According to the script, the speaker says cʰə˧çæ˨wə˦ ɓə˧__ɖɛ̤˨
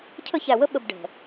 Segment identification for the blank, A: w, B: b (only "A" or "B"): B